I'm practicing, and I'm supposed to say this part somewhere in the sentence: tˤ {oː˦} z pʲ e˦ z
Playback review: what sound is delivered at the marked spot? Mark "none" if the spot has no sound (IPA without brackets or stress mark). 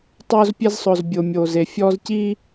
oː˦